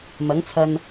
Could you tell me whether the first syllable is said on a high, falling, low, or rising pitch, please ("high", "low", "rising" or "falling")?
rising